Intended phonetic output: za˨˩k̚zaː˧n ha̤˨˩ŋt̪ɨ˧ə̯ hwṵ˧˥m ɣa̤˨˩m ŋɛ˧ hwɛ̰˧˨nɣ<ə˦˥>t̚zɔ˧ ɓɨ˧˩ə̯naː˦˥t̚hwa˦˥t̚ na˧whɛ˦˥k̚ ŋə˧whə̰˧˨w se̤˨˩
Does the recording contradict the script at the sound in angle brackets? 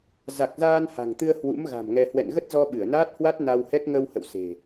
no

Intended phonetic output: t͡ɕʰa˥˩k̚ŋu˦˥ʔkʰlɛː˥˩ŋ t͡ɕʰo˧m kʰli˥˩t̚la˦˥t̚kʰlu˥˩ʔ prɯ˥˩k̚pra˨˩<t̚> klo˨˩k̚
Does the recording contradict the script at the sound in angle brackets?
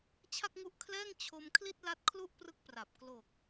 yes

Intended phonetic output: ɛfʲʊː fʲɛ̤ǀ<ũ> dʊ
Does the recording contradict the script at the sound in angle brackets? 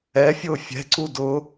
yes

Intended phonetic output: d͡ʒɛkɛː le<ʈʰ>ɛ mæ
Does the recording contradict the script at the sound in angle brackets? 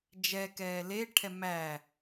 no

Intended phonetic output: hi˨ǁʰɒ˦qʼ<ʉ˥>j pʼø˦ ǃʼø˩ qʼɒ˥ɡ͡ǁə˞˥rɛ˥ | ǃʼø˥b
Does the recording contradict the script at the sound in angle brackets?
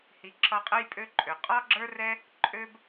yes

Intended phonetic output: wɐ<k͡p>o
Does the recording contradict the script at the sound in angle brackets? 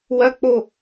no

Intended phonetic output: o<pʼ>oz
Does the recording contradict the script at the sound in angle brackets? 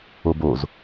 yes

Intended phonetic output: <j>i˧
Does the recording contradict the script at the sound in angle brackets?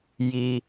no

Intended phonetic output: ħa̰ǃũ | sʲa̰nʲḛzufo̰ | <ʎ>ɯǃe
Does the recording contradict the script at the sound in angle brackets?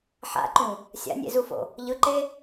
no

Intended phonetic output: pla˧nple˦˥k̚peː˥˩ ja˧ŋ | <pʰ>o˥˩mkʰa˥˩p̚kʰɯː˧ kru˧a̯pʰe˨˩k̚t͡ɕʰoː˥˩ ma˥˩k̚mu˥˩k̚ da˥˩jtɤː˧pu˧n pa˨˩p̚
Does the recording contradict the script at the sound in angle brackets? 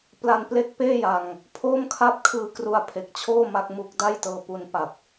no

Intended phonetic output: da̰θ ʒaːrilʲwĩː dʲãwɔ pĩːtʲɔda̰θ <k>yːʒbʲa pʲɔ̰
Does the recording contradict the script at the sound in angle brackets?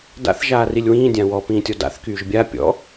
no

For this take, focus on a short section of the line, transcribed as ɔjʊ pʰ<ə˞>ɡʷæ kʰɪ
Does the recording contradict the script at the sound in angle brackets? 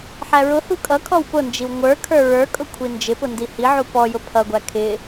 yes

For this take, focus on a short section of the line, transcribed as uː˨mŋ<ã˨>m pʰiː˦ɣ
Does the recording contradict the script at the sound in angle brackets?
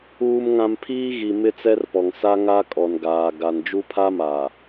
no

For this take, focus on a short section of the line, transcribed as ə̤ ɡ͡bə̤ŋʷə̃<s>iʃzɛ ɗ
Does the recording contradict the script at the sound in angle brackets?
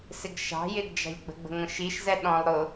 yes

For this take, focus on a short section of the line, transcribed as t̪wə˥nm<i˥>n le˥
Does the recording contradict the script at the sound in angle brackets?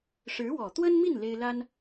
yes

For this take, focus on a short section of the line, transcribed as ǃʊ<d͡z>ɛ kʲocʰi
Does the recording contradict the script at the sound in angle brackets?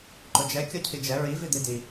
yes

